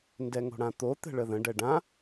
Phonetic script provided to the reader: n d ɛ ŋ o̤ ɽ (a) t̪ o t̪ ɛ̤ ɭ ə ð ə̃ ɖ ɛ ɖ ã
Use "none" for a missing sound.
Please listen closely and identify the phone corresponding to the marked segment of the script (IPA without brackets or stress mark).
ã